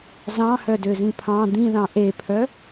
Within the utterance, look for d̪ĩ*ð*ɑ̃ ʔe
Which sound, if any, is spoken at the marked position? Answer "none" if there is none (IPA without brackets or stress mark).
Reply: ð